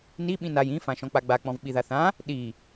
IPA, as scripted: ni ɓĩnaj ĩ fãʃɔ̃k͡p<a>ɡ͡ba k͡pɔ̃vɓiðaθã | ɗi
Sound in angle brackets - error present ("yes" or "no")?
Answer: no